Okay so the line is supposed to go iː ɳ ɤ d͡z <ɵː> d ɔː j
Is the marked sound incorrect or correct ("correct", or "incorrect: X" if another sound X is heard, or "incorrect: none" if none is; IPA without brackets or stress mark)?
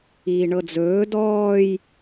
correct